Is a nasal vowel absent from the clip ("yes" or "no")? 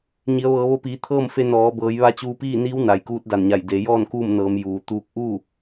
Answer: yes